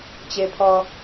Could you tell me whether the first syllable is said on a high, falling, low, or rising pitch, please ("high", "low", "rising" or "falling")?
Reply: low